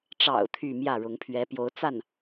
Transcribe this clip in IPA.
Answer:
ʈ͡ʂ ɑ̰˨˩ ʊ̯ t̪ʰ y˥˧ m j ä˥˩ ɻ ʊ˧˥ ŋ pʰ ɥ ɛ˧˥ p j o˧˥ ʊ̯ t͡s a˥˩ n

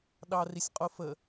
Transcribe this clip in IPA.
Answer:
ɗ ɑ r i sʲ qʼ o f ə

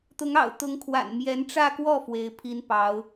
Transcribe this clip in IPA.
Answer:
t̪ ʊ˧˥ ŋ ɑ̰˨˩ ʊ̯ t̪ ʊ˧˥ ŋ kʰ w a̰˨˩ n m j ɛ˧˥ n ʈ͡ʂ ä˥˧ k w ɔ˥˩ f w e˧˥ ɪ̯ pʰ i˥ n p ɑ˧˥ ʊ̯

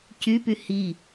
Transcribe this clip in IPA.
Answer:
c y p y h i

